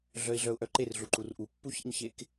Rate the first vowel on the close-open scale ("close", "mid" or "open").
mid